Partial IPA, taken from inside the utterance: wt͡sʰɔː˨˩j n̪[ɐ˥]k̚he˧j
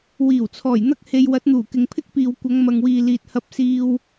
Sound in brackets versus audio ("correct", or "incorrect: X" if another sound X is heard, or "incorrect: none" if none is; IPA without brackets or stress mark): correct